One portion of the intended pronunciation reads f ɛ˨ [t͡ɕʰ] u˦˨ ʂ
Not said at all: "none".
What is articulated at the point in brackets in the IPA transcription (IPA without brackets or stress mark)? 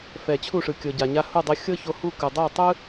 t͡ɕʰ